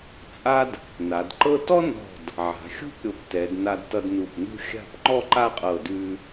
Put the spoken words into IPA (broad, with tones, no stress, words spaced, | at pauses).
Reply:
t͡sʼa˥d | na˩˧dǃɤ˥ tɔ˥nɔ̤˧˩d | ʕa̤˩˧xʲṳ˥p ɾʲo˧ptɛ˩˧dna˧dtʌ˧d nu˧˩pnṳ˥˧xʲa̤˥˧p ŋ͡ǃɔ˥˧ǃa˥˧qʼɤ˧˩dʉ˧